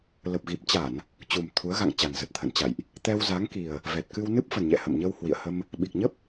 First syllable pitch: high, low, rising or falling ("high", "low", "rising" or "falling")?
low